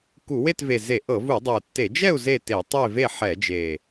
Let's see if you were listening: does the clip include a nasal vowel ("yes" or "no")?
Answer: no